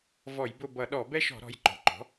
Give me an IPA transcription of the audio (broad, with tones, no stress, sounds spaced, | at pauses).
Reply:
v ɔ˧˩˧ j b ʊ˦˨ b ʌ˧˩˧ ɗ ɔ˧˩˧ b ɛ˦ ʃ ɔ̤˧˩˧ ɾ ɔ̤˩˧˩ j ǃ ɔ̤˩˥ ǃ ɔ̤˩˥